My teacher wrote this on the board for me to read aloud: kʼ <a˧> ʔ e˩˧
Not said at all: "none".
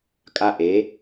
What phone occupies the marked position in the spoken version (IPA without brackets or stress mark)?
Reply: a˧